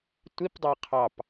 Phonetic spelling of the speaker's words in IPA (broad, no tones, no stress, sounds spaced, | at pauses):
tʷ i p dˤ a qʰ ɑ p